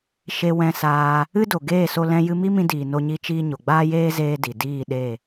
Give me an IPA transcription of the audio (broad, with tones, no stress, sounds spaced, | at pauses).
ʃ e˧ w ɛ̃˧ s aː˧ | ɨ˦ d o˨ ɡ eː˦˨ s o˧ l ɛ̃˧ j ɨ˧ m i˦ m ĩ˧ d iː˨ n o˦ ɲ i˦ t͡ʃ iː˦ ɲ o˨ ɡ͡b aː˦ j eː˦ z eː˦ d i˨ d iː˦˨ ɗ e˦˨